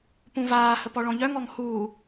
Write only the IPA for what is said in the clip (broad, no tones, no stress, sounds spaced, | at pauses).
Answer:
p ũ v aː h ə p ɔ ɭ ɔ̃ ʎ œ ŋ ɔ ŋ h uː